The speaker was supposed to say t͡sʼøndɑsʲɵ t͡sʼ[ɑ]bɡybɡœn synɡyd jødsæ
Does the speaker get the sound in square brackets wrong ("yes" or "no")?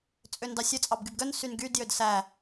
no